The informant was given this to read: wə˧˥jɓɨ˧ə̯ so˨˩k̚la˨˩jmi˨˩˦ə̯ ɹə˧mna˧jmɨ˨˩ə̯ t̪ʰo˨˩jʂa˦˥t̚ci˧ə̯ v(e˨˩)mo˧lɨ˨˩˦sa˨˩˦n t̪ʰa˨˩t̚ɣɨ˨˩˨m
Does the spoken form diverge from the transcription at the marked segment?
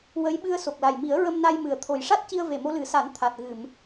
no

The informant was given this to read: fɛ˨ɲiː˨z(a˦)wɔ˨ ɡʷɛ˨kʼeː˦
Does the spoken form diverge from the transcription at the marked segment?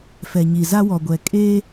no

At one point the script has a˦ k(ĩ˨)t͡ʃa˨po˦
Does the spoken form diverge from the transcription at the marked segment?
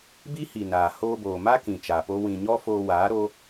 no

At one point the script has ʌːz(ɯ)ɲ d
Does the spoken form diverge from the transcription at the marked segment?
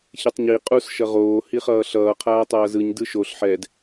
no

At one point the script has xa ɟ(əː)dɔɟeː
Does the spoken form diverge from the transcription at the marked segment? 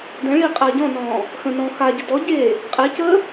yes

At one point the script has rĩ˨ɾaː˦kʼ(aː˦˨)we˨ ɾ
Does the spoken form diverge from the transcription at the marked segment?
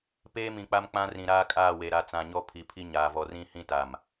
no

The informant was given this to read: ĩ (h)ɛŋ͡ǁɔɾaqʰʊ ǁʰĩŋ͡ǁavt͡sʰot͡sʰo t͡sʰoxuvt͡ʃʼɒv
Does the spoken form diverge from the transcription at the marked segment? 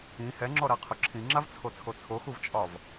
no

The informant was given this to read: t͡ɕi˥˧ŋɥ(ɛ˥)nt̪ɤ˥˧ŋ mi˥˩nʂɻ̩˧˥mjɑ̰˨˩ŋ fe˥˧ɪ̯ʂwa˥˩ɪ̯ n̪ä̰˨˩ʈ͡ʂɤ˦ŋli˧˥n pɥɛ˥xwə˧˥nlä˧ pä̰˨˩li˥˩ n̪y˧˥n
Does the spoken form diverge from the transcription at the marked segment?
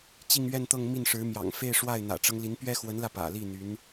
yes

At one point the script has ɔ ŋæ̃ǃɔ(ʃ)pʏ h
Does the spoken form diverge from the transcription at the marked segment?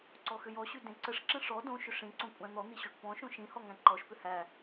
no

